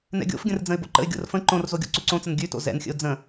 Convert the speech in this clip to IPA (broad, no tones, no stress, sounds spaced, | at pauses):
n ɛ̰ ɡʲ o̰ f ɡʲ ə̃ r d͡z ə̃ ɪ̯ b o̰ ǃ ə̰ ɪ̯ ɡʲ o̰ r f ə̃ ǃ õ r z o ɡʲ o̰ ǀ ʉ ǀ õ t͡s ə n ɡʲ ʉ t o̰ z ɛ̰ n xʲ ə̰ ʊ̯ d͡z ə̃